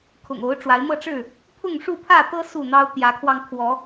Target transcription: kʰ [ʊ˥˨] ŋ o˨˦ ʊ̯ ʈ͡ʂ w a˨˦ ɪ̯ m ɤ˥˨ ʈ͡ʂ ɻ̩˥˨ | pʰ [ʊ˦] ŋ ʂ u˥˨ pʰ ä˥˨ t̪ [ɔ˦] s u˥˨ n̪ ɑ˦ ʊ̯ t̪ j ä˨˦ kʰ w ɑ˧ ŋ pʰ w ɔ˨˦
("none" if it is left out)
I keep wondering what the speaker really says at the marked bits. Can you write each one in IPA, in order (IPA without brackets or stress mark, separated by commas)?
ʊ̰˨˩, ʊ˥˨, ɤ˦